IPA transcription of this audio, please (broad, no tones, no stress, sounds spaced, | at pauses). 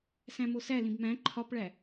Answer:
s æ̃ m o s æ l ĩ b m æ̃ ǃʰ ɒ p ɭ æ